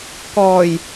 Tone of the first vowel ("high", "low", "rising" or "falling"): low